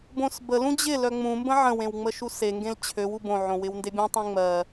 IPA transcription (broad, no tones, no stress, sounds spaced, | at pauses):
b õ s b ə l ũ d͡ʑ ɪ l œ ŋ͡m ũ m b ə̃ ʕ ə̃ w ẽ w ŋ͡m ə ʃ u s e ŋ ɡ ẽ l t͡ɕʰ ø w u b õ ʕ õ w ɪ w n d e bʲ ũ tˤ ẽ ŋ͡m ɜ